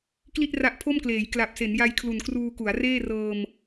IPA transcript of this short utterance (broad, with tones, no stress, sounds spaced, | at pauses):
k l i˥˩ t̚ r a˦˥ ʔ pʰ o˥˩ m k l eː˩˦ j k l a˨˩ p̚ s e˩˦ n j a˧ j kʰ l u˨˩ n k r uː˧ k u˩˦ a̯ r eː˥˩ r ɤː˧ m